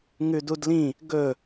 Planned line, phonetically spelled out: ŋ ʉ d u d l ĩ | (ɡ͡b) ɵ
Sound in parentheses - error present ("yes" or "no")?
yes